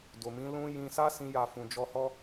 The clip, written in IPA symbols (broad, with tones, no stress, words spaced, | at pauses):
do˨mĩ˨˦ lũ˦ jĩ˧sa˦ sĩ˦ja˦˨ fũ˨d͡ʒɔ˧hɔ˦